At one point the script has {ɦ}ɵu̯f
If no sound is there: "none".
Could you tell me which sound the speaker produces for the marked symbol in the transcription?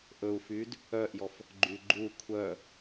ʔ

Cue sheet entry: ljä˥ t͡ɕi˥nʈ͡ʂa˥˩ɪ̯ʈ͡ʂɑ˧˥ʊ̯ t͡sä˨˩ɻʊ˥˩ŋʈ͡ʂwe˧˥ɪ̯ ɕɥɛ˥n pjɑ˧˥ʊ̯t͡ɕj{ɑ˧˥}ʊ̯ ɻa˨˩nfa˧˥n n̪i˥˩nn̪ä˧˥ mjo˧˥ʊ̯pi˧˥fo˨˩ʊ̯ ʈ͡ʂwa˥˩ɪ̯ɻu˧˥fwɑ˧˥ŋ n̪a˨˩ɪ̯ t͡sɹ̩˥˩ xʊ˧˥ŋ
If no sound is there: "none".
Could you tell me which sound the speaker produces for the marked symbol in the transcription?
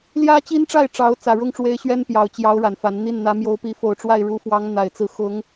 ɑ˧˥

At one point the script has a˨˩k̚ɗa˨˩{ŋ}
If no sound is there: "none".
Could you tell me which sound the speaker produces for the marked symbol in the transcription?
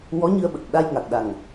ŋ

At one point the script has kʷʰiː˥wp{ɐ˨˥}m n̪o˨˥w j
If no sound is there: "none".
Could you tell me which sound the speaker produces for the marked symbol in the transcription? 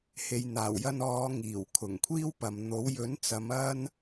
ɐ˨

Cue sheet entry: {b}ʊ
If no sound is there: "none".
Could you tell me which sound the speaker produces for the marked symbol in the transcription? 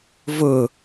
v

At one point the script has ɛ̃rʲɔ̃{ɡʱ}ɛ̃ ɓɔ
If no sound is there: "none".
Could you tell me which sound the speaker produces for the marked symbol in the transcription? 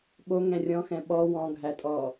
x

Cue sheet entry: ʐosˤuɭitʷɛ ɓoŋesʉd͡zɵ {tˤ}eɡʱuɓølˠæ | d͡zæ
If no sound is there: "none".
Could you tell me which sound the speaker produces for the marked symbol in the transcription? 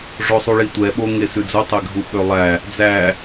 tˤ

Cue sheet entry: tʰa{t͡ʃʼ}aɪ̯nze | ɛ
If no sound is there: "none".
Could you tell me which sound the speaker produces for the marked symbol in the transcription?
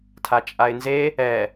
t͡ʃʼ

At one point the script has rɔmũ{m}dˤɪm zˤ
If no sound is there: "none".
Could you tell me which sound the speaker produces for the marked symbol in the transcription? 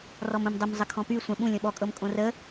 m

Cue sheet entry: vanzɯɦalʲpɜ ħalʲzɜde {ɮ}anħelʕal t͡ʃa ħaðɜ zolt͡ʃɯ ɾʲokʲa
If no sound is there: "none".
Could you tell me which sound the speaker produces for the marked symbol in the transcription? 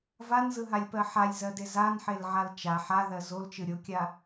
z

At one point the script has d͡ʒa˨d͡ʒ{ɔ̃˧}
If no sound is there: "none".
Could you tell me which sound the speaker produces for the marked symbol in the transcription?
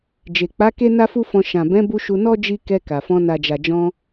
ɔ̃˧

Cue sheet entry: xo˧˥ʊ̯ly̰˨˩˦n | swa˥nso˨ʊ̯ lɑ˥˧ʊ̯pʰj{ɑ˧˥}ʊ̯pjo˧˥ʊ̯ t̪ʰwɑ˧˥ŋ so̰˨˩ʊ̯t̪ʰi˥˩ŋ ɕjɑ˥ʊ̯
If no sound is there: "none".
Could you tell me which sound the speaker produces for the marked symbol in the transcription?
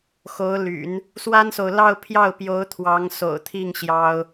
ɑ˥˩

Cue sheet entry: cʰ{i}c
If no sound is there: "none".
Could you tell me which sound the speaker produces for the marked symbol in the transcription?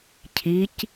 i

